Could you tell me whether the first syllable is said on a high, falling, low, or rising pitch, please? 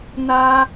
high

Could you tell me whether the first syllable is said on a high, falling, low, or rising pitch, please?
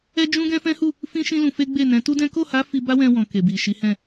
high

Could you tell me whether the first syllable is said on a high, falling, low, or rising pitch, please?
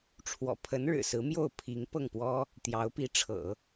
low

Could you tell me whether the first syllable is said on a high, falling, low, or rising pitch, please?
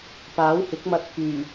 rising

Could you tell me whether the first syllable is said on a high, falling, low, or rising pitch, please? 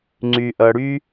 low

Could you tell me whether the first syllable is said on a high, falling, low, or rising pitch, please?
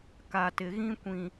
low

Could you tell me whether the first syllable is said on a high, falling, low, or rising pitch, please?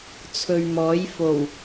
low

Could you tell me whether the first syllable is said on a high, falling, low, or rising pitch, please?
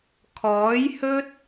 rising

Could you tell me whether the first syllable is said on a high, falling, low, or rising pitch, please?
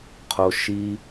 low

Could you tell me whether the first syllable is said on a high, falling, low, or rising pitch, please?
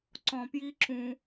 low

